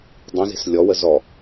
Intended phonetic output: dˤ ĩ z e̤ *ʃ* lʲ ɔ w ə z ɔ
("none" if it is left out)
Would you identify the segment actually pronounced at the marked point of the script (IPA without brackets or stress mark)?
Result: s